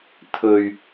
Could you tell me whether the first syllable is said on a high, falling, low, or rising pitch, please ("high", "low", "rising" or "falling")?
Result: low